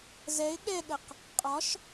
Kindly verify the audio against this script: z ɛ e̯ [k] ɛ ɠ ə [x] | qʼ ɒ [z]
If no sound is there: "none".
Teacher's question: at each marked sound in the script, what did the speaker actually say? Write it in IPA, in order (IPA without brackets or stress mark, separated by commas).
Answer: ɠ, q, ʃ